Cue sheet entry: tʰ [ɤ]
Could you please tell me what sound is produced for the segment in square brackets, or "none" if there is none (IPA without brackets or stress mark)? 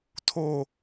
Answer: o